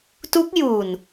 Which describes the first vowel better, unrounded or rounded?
rounded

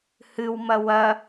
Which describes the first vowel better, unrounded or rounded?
unrounded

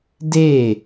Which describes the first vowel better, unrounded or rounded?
unrounded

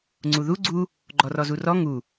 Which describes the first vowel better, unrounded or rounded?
rounded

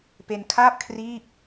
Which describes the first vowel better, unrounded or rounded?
unrounded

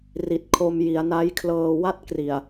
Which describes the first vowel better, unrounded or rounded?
unrounded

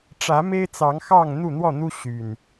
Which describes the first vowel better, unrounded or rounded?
unrounded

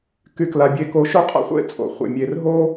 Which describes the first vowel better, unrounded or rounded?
rounded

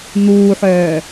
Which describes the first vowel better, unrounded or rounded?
rounded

